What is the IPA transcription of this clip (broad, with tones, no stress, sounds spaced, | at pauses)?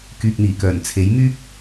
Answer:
k yː˨ k̚ n̪ iː˨˩ k œː˨˩ n t͡sʰ e˨˥ j m yː˥ k̚